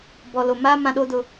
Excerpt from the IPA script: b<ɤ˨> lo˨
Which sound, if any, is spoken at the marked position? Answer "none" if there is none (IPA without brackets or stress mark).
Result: ɔ˨